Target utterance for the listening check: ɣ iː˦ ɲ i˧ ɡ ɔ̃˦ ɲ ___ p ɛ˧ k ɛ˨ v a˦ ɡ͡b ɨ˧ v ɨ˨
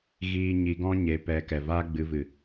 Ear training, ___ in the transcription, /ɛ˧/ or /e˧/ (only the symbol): e˧